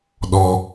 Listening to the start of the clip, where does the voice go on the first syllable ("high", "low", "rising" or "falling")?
low